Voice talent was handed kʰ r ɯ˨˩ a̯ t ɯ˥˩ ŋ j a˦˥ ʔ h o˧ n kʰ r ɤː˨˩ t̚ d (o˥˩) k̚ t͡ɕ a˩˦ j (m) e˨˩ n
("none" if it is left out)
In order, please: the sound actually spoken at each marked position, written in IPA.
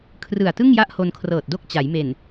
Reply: o˥˩, m

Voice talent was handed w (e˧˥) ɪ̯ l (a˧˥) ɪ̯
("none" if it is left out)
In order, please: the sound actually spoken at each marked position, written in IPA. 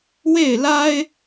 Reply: e˥˩, a˥

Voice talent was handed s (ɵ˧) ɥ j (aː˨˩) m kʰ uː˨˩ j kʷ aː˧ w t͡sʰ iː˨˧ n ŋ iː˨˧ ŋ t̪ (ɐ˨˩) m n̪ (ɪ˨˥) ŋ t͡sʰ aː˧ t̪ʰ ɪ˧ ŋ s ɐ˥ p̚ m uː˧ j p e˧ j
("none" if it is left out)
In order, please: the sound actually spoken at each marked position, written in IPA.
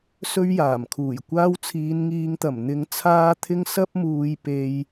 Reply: ɵ˧, aː˨˩, ɐ˨˩, ɪ˨˧

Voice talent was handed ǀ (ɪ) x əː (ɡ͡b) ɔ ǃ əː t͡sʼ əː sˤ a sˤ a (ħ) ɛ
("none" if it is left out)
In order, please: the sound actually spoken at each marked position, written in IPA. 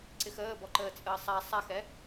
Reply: ɪ, b, x

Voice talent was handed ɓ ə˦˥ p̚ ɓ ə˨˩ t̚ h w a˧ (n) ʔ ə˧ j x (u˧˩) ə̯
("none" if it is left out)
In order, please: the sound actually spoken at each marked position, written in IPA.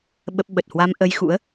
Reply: m, ṵ˧˥

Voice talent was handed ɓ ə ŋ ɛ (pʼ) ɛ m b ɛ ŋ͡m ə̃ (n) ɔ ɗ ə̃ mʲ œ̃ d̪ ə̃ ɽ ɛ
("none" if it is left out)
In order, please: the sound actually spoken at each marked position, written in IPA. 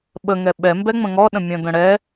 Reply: ɓ, ŋ

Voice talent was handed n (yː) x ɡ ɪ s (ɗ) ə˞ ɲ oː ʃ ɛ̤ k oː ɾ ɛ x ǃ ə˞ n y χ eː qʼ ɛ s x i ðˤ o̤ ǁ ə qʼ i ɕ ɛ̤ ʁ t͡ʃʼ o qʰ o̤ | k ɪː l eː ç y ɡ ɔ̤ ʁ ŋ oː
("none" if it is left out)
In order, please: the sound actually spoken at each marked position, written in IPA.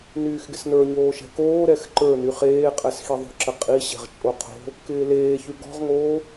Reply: yː, n

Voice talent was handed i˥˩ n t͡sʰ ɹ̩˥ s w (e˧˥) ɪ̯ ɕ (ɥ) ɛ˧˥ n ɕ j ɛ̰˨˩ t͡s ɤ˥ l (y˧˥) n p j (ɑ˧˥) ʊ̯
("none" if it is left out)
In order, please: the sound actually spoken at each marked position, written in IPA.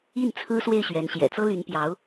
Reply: e˥˩, ɥ, y˧˥, ɑ˧˥

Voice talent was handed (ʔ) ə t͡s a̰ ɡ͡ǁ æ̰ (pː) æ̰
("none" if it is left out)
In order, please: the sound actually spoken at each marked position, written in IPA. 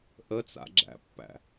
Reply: ʔ, pː

